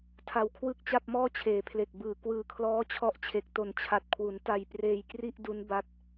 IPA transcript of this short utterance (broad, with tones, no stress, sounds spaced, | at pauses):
tʰ a˧ w kʰ w ɯ˥˩ k̚ t͡ɕ a˥˩ p̚ m ɔː˥˩ t͡ɕʰ eː˨˩ pʰ l e˨˩ k̚ b ɯː˨˩ k w ɯː˨˩ kʰ l ɔː˦˥ t͡ɕʰ ɔ˦˥ ʔ t͡ɕʰ e˨˩ k̚ t o˨˩ n t͡ɕʰ a˨˩ t̚ kʰ w u˩˦ n t a˧ j p r eː˧ j k r i˥˩ ʔ d u˦˥ n b a˦˥ t̚